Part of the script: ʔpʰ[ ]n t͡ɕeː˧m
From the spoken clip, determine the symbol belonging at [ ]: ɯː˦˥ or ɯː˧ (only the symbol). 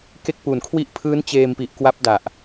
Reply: ɯː˦˥